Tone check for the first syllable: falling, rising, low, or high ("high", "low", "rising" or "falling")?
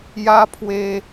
high